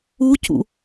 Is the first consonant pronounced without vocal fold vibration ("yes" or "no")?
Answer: yes